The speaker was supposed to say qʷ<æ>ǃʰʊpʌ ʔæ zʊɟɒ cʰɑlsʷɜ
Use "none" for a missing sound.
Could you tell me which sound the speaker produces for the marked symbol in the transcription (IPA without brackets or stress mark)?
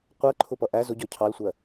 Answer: ɜ